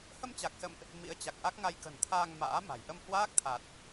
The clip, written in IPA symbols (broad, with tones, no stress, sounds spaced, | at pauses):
h ə˧ m t͡ɕ a˨˩ k̚ s ə̰˧˨ m ʔ | m ḭ˧˥ ə̯ t͡ɕ a˨˩ k̚ ʔ a˦˥ k̚ ŋ a˧ j k ə̤˨˩ n t̪ʰ aː˧ ŋ m a̰ː˧˥ m a̤˨˩ j ʔ ə˧ m h w aː˦˥ k̚ t̪ʰ a˨˩ t̚